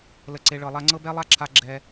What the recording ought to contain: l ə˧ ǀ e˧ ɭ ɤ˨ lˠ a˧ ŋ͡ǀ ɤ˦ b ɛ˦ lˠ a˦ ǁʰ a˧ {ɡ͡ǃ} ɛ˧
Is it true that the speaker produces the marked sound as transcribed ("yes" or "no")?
no